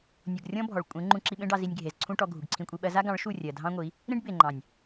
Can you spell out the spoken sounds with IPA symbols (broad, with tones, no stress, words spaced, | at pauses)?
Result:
nʲu˨ɡrʲɔ̃˦bʱɔ˨ɭ kʷʼẽ˨˦ ŋ͡ǃũ˧ǁi˧ɓẽ˦ɖɑ˧ zi˧nʲɡʱe˨zǀʰũ˦ʈɔ˧ ɡʱu˨ɡǀʰĩ˧kʷʼi˧ɓɜ˦ za˦ɡɑ̃˨˦ɭ ʃu˦˨rʲɜ˨dʱɑ̃˦ŋʷi˨˦ | ɾĩ˦ɖ be˨ŋ͡ǃɑ̃˨nʲ